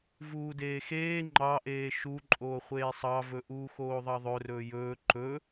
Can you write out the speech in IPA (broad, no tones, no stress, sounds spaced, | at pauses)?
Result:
v uː d eː x eː ŋ͡ǃ ɑ ʔ eː ʃ u ǃʼ oː χʷ eː sˤ ɑ v ɵ ʔ uː x oː ðˤ ɑ ðˤ ɵ r ɵː j ɵː ǃ ɵ